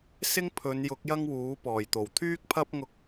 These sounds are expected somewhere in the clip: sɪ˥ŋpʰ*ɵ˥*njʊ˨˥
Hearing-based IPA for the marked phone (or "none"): ɵ˨˧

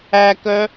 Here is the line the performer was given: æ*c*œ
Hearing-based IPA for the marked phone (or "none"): k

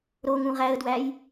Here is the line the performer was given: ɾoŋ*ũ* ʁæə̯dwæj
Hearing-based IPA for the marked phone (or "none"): ũ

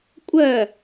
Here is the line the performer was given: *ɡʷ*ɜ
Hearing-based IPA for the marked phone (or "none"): kʷʼ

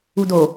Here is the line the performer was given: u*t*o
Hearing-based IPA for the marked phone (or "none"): d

